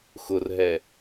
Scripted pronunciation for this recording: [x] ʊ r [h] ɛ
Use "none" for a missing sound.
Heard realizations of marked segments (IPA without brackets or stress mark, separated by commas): x, ɦ